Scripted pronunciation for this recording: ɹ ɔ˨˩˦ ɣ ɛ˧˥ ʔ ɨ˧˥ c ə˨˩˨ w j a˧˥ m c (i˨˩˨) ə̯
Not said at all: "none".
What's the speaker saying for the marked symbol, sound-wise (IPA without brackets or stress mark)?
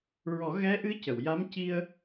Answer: i˧